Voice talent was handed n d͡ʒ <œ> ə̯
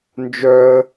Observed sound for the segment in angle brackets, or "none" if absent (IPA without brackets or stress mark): œ